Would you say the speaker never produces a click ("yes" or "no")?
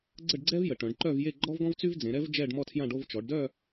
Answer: no